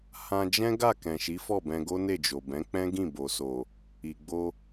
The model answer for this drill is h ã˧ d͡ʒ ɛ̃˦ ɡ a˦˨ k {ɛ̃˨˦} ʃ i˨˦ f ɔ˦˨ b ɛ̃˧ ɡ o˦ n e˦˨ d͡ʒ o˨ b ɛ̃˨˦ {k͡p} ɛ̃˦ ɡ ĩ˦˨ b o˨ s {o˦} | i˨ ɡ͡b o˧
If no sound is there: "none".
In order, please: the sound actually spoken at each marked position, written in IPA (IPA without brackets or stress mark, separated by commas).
ɛ̃˨, k͡p, o˨